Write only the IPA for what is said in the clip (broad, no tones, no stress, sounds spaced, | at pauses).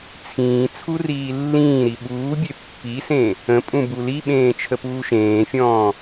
t͡sʰ ĩː t͡sʰ u r iː lː ĩː ɾ i ɓ uː bʲ e pː i s ẽ | ə̃ pʼ ũ b u l i ɓ ẽː t͡ʃʰ ə p uː ʃ ẽː fʲ ɔ̃ː